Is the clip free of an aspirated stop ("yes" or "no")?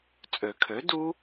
no